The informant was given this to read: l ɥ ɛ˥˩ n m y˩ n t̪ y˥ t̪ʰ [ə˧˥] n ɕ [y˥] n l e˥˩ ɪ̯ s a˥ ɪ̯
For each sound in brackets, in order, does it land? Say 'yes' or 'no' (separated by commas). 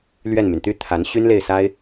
no, yes